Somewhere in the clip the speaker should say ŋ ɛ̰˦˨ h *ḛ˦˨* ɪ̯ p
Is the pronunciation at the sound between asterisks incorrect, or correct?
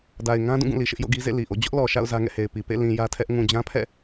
incorrect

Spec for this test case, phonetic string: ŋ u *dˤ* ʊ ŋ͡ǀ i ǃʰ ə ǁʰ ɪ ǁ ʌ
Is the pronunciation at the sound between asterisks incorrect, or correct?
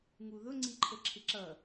incorrect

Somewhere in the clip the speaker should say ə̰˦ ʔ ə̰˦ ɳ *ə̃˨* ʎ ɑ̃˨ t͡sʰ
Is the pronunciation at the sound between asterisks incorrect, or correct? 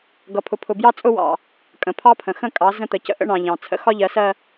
incorrect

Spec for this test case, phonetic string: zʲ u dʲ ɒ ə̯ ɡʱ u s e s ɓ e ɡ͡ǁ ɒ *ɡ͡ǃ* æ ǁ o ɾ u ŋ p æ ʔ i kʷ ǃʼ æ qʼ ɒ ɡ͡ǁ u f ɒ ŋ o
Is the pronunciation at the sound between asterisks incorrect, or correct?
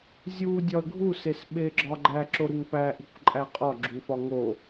correct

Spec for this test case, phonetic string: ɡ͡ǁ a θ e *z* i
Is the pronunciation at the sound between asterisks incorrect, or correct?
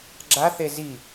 correct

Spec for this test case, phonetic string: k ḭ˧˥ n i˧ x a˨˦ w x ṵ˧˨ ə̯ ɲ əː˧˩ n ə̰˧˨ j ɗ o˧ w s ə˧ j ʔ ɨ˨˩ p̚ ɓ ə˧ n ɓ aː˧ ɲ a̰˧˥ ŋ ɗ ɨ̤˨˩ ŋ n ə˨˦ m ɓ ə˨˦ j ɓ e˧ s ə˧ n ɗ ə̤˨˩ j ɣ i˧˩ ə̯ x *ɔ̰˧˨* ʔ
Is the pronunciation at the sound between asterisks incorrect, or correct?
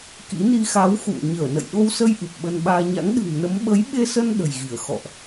correct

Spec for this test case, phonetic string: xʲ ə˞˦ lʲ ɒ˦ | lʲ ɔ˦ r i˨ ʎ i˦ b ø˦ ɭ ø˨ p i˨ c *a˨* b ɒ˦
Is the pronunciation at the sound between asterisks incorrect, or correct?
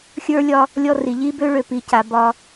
correct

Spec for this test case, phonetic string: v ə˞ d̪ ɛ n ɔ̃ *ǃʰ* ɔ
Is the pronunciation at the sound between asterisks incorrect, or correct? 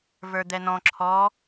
incorrect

